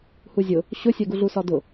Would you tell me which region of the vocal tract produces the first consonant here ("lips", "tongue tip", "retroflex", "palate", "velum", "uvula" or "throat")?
throat